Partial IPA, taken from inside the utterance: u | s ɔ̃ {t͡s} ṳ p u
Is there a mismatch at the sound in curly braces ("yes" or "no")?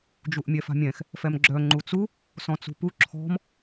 no